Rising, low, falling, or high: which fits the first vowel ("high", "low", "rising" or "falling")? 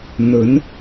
rising